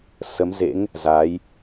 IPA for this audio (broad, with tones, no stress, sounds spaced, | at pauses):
s ə˨˦ m z ḛ˧˥ ŋ | z a˨˦ j